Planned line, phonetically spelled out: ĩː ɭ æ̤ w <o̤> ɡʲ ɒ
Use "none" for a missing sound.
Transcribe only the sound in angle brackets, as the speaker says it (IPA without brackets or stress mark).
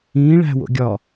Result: o̰